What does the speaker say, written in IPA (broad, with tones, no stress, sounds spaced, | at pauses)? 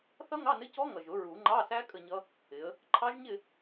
θ ʌ˦˥ ŋ ɑ˧˥˧ n ɪ˧˥˧ c ɔ˦˥ ŋ ʌ˨˩ ʒ ʊ˨˩˦ ɹ u˨˩˦ ŋ͡ǃ ɑ˧˥˧ s æ˦˥ kʼ ə˥˧ ɲ ʌ˦˥ | ɪ˨˦ ə̯ | ǃʰ ɑ˦˥ ʒ ɲ ɪ˥˧